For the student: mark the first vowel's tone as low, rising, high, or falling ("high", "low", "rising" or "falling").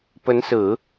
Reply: rising